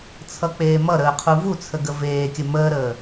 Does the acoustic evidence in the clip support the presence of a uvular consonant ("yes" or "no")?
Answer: yes